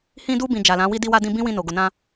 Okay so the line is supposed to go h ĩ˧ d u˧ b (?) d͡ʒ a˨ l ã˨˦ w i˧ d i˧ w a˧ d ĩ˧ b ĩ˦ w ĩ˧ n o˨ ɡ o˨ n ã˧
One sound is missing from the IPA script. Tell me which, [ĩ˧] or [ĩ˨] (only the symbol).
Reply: ĩ˨